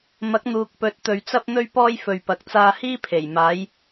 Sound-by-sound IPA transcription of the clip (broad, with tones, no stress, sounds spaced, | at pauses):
m ɐ˨˥ k̚ n̪ uː˨ k̚ p ɵ˨˥ t̚ t̪ ɵ˨ ɥ t͡s ɐ˥ p̚ n̪ ɵ˥ ɥ p ɔː˥ j f ɵ˨ ɥ p ɐ˨ k̚ t͡s aː˧ h iː˥ pʰ e˨˩ j m aː˨˧ j